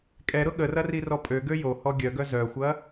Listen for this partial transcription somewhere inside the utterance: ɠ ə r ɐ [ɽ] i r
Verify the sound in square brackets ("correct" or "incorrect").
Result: incorrect